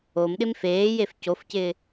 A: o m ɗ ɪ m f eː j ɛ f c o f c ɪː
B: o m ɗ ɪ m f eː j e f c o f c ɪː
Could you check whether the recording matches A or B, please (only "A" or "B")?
B